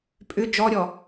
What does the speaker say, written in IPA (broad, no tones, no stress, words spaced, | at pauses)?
pʼʏ d͡ʒɔɾʲɔ